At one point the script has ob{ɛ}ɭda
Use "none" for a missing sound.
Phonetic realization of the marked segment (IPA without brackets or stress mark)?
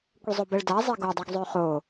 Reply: ɛ